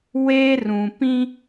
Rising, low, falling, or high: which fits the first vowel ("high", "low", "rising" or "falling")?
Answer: high